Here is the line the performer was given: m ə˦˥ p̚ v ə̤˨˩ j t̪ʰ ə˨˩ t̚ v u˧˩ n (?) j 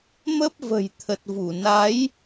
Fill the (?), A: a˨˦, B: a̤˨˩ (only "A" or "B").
A